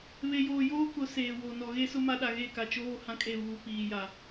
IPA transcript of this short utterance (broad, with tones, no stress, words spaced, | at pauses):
βe˨joː˨ joː˦kʊ˨˦ seː˨wo˨ nɔ˨ɣe˦sʊ˦ ma˦ɗa˨ ɣe˦˨ka˨t͡ʃoː˦ hã˦kʼe˦˨βuː˨ piː˨ja˨